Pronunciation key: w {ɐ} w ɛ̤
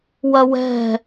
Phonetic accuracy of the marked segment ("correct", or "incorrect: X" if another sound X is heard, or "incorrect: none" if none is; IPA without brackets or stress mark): correct